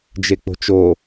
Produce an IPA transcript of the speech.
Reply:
d͡ʒ e k͡p o̤ t͡ʃ o

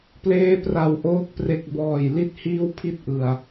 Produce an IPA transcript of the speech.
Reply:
p l eː˦˥ p r a˨˩ w ʔ oː˦˥ k̚ p r e˨˩ k̚ b ɔː˨˩ j l i˦˥ t̚ h iː˥˩ w pʰ i˥˩ t̚ ʔ ɯ˨˩ a̯

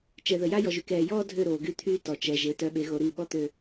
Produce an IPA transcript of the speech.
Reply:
t͡ʃ ɛ˨ ð ə˨ j a˦ j ɔ˨ ʒ y˨ k ɛː˨ j ɔː˦ dʱ ø˦˨ ɾ oː˨ ɡ y˦ t̪ʰ yː˦ t ɔ˨ t͡ʃ ɛ˨ ʒ e˨˦ t œ˨˦ ɓ e˨˦ ɣ o˨ ɾ i˦˨ ɓ ɔ˦ t̪ ø˨

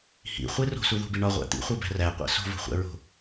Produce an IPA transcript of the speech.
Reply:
h ḭ χʷ e r o̤ s u ð o̤ b i ɳ ɒ ʁʷ æ̰ t̪ ḭ χʷ e b æ̤ r æ qʷ æ̰ s o̤ v o̤ χʷ æ̰ ɹ o̤

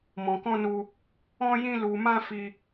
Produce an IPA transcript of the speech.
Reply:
m ɔ̃˧ k ɔ̃˦ n u˦ | ɔ̃˦ j ĩ˦ l u˧ m ã˦ f i˦

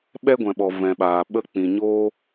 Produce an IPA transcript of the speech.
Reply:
ɓ ɛ˦ ɡʷ ɛ̃˨ ɓ ɔ˨ v ɛ̃˨ ɓ aː˨ ɓ ə˧ k͡p ĩ˨ ɲ oː˧

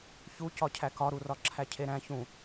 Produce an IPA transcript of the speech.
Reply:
ç u c ɒ cʰ æ k ɒ ɾ u r ɒ ǁʰ æ cʰ e ɾ æ̃ ç ũ

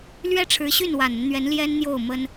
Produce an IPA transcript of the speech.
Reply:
l ɥ ɛ˥ ʈ͡ʂʰ ɻ̩˧˥ ɕ y˥˩ n w a˨˩ n ə˦ n n̪ ɥ ɛ˧˥ n l j ɛ˥ n n̪ j o˥˩ ʊ̯ m ə˥ n

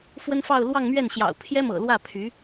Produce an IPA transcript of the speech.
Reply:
f w ə˥ n f ɑ˥˧ ʊ̯ l w ɑ˥˧ ŋ m ɥ ɛ˥˩ n ɕ j ɑ̰˨˩ ʊ̯ pʰ j ɛ˥ m ɤ̰˨˩ l w ä˥˩ pʰ y˧˥

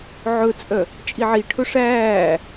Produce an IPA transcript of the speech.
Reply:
ʕ ɵ t͡sʼ œ | t͡ʃʼ i ʕ i ʈʰ ɵ ʂ æː

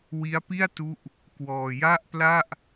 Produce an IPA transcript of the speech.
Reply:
w i˦˥ a̯ p i˥˩ a̯ t u˦˥ ʔ | k w ɔː˧ j a˥˩ ʔ p l a˥˩ ʔ

